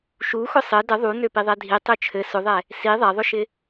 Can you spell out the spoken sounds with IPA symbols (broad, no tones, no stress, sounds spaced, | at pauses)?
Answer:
ʃ u x ʊ sˤ ɘ d ə ðˤ u n ø p i ðˤ ɛ dʱ i tˤ ø t͡ʃʰ ɘ s ʊ ðˤ ɛ | s i ðˤ ɛ ðˤ ʊ ʃ ɪ